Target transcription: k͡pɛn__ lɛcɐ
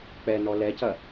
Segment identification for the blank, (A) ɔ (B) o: A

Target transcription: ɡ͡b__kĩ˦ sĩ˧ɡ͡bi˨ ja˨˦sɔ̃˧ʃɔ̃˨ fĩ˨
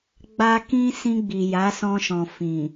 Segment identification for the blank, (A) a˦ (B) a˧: B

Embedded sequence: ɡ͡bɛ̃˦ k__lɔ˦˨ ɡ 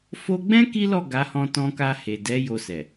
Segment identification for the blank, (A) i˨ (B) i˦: B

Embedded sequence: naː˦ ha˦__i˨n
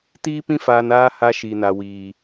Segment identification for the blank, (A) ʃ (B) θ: A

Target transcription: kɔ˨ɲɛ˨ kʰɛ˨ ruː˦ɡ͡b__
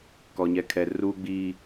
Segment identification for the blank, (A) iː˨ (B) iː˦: B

